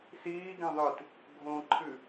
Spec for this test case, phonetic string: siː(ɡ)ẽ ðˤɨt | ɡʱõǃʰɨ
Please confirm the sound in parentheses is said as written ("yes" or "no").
yes